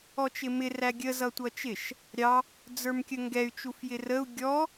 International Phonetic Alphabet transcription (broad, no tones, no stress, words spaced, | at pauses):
ɔt͡ʃɪmɪ ræɡʲə zʌtʷʌt͡ʃɪʃ | ɾʲɑ | d͡zə˞mkʲəŋɡɛy̯ t͡ʃufjɪrəu̯ ɡʲɔ